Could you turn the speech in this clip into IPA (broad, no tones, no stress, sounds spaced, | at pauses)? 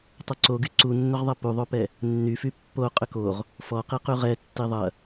tˤ ʏ ǀ o ɡ y ǀ u nː ʏ ʁ ðˤ ɐ p u ðˤ o p ɛ | nː y f y pː o qʼ ʏ k o ʁ | f ɔ q i q y ʁ ɛ tː i ðˤ ɐ